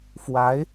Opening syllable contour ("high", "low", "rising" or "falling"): rising